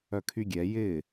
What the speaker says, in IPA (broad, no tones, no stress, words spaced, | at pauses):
œkʰyɡʲɛ jɪ